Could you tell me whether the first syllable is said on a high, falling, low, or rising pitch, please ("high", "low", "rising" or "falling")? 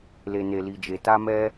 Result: low